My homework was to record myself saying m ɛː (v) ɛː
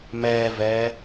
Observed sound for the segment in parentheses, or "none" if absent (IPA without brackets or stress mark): v